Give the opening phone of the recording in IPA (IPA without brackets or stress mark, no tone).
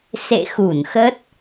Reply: s